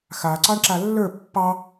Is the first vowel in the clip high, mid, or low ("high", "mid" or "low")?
low